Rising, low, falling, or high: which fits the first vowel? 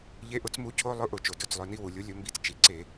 rising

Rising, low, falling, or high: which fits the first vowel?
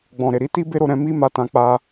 low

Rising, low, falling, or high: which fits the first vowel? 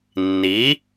rising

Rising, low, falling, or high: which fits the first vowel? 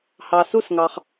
low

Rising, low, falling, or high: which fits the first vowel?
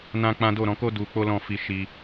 high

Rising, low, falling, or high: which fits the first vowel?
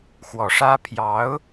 low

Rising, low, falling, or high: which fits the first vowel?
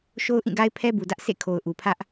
high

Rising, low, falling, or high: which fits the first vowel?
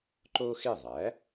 high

